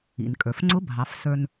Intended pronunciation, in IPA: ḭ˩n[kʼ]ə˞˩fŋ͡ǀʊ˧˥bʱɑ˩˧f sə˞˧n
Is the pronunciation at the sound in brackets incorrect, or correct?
correct